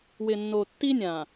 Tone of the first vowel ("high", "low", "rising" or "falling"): low